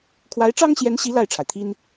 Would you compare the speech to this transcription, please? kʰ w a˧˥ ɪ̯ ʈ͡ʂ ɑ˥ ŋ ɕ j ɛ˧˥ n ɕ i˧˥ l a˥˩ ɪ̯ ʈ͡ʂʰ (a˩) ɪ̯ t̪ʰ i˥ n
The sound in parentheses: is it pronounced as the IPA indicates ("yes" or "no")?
yes